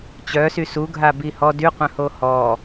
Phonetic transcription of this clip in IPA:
t͡ɕœsy suɡʱa bihɔ dyqʷœ̃ho hɔ

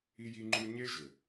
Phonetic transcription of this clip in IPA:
i˦ji˦ŋ͡ǃu˦ ɲe˦ʒɘ˨

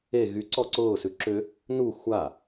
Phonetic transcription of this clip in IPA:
e ɣy ǀɔǀʊː sʉǁʏ | nu xʷa

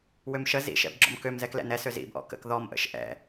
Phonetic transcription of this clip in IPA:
wømʃə zḭ ʃɛ̰bɡ͡ǁɔ̰mkøm zɛklɛ̰nɛ søzḭb ʔɔ̰kə̰k ðɔmʔə̰ʃ ʔɛ̰

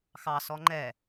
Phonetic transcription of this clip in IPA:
xɑsɔ ŋ͡ǃɛ

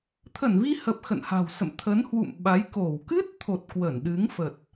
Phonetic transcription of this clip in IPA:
t̪ʰə˧˩nvi˧hə˨˩p̚ xə̰˧˨nha̤˨˩wsə̰˧˨m t̪ʰə˨˦nhwṵ˧˨m ɓa˨˦jko˧˩w kɨ˦˥t̚t̪ʰo˨˩t̚ kwə˧˩nɗɨ˨˦ŋ fə˨˩t̚

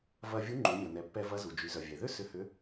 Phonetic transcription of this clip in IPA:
vɐ˧ vʲu˧˥ŋ͡ǃu˩˧mʲɔ˩ nɛ˩˧pːɛ˧vɐ˧˥ zu˩d͡ʒy˩˧ zœ˩vʲɛ˩ ðʏ˥ sʏ˧˥hʏ˧˥

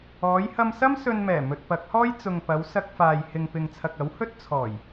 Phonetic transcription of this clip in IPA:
ɔː˨˧jhɐ˧msɐ˥m sɵ˧nmɛː˨˩ mɵ˨t̚pɐ˨˥k̚hɔː˥j t͡sʊ˨ŋpɐ˨˧w sɐ˧k̚faː˨j hɪ˨ŋpɪ˨ŋt͡sʰɐ˨k̚ ɐ˨˥whɵ˥t̚ t͡sʰɔː˨˩j

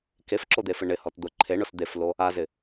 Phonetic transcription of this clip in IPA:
kefǁod̪efɪ ɳɪhɔt d̪ʊ ǃʰeɳʊs d̪eflo | azɪ

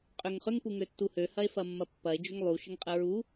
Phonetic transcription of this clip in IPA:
qʼʏŋχʏŋ puŋøtːuhø hɐe̯fɐmːɐpːɐe̯ d͡ʒʏŋlˠu ʃəŋqʼəɹu

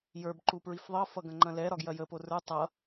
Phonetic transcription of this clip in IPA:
jə˞bǃu pɹifðˤʌfʌ ɡɐ̃ŋ͡ǃɐ̃lɛɾɒ ɡjɐjəpo rə˞ tˤʌ

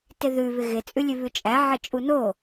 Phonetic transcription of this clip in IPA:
tɪðʉ βɪɣɪ t͡sʼʉlʲʉβʉt͡ʃʼæ ʕɪt͡ʃʼuno

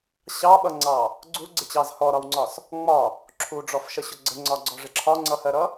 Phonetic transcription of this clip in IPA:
ɕɑɓʌŋ͡ǀɑ | ɡ͡ǀuɡ͡ǀɪt͡ɕɑz hɔɾɒwŋ͡ǀɒs | ŋ͡mɒ | ǁʰuɖ͡ʐɔfʃəɕʊ ɡ͡ǀəŋ͡ǀɒɡ͡ǀɔʐɪ ǁʰɒŋ͡ǀʌhɜɾʌ

